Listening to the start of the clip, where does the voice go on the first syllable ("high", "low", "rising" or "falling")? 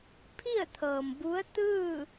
falling